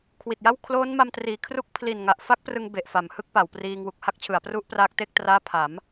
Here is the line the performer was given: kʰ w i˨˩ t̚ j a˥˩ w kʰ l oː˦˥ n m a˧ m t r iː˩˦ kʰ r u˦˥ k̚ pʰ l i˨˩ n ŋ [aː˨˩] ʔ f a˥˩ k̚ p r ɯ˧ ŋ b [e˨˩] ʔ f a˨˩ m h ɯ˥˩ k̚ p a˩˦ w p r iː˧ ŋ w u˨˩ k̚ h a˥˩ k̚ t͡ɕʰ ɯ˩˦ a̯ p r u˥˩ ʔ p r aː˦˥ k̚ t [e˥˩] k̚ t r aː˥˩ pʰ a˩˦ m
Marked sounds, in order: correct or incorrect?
incorrect: a˨˩, correct, correct

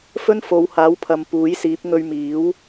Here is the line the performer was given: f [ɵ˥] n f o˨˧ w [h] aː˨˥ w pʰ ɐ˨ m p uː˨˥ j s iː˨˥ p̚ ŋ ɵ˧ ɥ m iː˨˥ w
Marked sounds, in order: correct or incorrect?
correct, correct

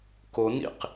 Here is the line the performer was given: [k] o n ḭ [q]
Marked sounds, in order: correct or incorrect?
correct, correct

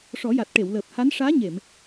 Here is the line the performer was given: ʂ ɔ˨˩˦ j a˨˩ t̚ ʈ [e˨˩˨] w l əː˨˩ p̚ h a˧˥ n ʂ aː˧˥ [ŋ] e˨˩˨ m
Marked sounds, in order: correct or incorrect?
correct, incorrect: ɲ

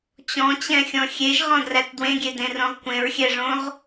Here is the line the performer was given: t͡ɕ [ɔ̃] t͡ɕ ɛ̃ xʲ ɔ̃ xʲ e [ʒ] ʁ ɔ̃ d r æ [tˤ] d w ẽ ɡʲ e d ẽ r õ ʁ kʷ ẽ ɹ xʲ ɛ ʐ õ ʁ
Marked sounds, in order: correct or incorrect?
correct, correct, incorrect: t

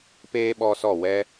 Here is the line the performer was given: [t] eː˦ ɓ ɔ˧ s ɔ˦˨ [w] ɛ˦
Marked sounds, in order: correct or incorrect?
incorrect: p, correct

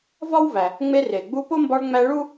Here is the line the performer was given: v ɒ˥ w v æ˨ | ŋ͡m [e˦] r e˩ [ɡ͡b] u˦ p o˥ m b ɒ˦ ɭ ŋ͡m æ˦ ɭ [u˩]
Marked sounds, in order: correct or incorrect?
correct, correct, incorrect: u˥

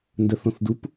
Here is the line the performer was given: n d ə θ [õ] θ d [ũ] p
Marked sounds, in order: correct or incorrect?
correct, incorrect: u

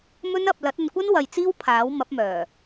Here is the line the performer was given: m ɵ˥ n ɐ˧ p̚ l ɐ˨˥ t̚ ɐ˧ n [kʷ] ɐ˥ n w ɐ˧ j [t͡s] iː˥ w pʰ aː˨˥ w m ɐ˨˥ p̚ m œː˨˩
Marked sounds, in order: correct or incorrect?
correct, correct

